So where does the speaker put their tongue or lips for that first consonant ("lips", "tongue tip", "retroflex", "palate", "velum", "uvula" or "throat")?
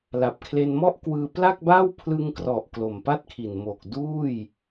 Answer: tongue tip